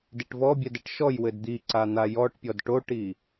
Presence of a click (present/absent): present